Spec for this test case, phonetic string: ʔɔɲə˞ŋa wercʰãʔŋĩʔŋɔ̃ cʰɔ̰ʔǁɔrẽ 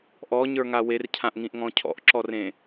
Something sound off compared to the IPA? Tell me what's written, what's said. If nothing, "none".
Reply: none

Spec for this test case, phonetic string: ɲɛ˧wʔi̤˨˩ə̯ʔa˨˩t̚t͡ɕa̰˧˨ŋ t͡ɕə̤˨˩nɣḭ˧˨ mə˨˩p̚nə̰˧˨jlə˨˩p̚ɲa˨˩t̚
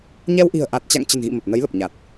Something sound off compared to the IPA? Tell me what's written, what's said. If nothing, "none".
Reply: ə̰˧˨ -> ə˨˦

